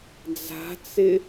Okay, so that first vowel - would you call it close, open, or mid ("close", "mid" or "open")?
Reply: open